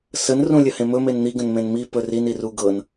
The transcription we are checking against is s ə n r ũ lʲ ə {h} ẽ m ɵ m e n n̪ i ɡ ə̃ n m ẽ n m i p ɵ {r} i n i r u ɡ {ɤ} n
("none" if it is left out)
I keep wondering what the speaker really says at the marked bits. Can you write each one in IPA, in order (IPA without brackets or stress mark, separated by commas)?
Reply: h, r, ɤ